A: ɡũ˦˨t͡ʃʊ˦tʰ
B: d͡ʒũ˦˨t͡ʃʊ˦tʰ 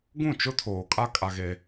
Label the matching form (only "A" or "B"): A